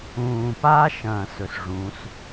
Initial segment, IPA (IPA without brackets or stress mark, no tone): ũː